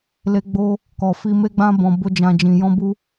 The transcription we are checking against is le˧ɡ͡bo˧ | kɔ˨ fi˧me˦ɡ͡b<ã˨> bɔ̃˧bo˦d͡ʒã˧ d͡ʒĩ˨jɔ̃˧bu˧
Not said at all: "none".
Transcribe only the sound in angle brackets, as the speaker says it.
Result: ã˦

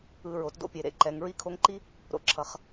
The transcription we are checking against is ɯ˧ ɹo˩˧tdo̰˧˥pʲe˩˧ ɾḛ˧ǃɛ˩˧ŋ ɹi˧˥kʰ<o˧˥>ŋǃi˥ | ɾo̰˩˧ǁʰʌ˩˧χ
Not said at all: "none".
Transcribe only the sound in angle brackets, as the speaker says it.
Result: o˧˥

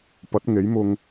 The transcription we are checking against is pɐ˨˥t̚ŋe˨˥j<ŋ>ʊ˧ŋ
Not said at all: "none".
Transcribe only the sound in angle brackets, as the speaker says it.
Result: m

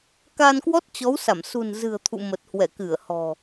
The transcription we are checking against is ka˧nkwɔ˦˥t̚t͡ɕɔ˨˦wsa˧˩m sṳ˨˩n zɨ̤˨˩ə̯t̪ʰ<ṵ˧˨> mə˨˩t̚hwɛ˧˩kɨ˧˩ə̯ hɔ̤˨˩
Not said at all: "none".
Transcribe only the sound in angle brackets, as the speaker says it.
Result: ṵ˧˨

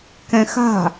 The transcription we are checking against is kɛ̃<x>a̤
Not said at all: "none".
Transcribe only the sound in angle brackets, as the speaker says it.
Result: x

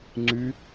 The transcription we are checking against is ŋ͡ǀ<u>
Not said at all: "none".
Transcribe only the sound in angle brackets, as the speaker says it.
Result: y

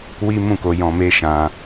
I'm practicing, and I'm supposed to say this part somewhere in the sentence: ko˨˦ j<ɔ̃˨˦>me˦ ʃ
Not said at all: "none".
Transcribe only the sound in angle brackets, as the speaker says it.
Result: ɔ̃˧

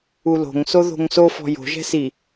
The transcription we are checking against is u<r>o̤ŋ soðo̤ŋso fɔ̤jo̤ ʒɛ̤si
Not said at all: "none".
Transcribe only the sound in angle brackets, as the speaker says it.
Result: l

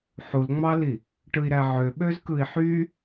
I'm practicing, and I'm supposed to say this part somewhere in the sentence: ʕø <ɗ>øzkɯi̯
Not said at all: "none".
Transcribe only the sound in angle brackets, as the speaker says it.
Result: ɓ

